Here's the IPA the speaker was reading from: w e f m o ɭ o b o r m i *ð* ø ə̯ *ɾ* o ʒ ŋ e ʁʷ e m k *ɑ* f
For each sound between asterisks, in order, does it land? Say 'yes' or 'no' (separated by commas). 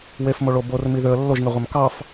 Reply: yes, no, yes